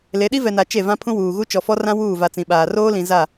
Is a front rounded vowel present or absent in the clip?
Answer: absent